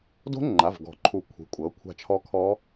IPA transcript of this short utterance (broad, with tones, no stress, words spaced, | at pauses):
do̤˦˥ ŋ͡ǃa˩˧˩vɡɔ̤˨˩˦ǃʰu˨˩˦ kʷʰi̤˩˧˩kʷʼɤ˩˥ kʷʰa̤˦˨t͡ʃʰɔ˦˥kʰɔ˦˥